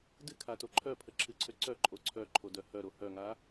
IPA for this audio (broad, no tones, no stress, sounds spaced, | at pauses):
d ɨ kʰ a t o ǃʰ œ pʰ ə ǁʰ ɨ ǀʰ ø ǀ œ ǃʼ o ǀʰ œ ǃʰ o d œ h œ ɾ o h œ ŋ a